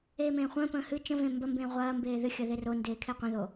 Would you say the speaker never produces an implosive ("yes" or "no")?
yes